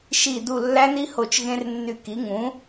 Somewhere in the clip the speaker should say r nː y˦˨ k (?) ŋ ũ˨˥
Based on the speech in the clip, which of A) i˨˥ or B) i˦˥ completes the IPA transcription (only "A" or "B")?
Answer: A